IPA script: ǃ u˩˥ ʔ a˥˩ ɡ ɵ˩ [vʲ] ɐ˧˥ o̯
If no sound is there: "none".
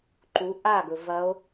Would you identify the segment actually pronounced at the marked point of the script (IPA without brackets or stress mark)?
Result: v